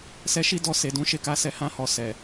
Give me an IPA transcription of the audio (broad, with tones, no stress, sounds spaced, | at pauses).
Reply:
s ɛ˧ ʃ i˦ d ɔ˦˨ s e˨ d ũ˨˦ ʃ e˦˨ k a˧ s ɛ˧ h ã˧ h ɔ˨ s ɛ˨